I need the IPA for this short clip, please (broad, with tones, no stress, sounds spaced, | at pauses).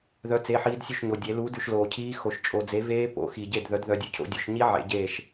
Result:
ð œ˦˥ t͡s e˧˥˧ ħ iː˦˥ d sʲ ʉ˥˩ ʃ ɲ o˨ dʲ e˨˥ l uː˨˥ d ʉ˨ ʃ l oː˨ cʰ iː˦˥ x o˨ ʃ t͡ʃʼ o˨ d͡z e˨˥ v eː˦˥ p o̰˨˥ x i˨ ɟ e˥˩ d ð œ˨˥ d ð œ˧˥˧ dʲ ʉ˥˩ cʰ o̰˦˥ dʲ o˨˥ ʃ ɲ i˦˥ ʕ ḛ˨˥ ɟ eː˥˩ ʃ